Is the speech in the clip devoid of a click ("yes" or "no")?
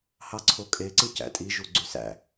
no